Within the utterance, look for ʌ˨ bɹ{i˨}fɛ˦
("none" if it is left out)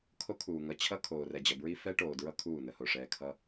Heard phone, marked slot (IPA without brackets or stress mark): i˦